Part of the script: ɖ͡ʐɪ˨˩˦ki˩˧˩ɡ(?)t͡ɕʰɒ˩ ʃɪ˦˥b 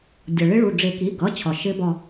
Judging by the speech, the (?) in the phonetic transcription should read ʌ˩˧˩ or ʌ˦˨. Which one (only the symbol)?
ʌ˩˧˩